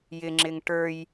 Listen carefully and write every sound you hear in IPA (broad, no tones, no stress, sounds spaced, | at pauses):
j ɪ ŋ͡ǁ ɪ ŋ ʈ ə˞ j